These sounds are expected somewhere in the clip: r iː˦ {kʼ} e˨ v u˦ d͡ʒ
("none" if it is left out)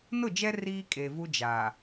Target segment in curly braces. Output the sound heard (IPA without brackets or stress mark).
kʼ